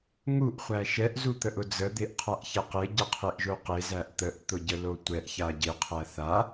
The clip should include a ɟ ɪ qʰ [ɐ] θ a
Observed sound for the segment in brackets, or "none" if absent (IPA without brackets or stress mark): æ